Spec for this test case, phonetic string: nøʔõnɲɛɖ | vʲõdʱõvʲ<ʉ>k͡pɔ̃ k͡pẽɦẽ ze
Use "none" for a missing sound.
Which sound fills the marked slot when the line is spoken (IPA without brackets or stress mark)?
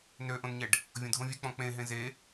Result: ʉ